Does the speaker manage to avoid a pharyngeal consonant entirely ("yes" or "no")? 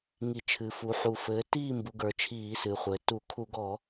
no